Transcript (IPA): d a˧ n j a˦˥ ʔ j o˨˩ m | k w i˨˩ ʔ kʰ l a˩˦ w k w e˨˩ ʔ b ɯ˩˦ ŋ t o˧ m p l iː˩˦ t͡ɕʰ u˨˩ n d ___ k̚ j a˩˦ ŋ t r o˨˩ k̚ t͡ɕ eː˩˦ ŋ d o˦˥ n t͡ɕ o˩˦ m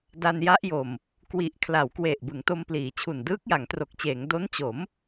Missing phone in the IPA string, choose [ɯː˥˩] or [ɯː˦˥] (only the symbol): ɯː˦˥